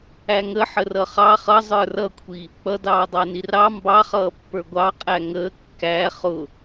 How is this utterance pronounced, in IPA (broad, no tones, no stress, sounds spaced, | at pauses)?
æ ŋ ə ħ ə r ʌ χ ɑ χ ʌ zˤ ə˞ r ʌ kʷʰ i | k͡p ʌ d ɑː dˤ ɑ n i r ɑ m b ɑ χ ʌː pː ə˞ ɡʷ ɑ qʼ æ ŋ əː kː æ χ ʊ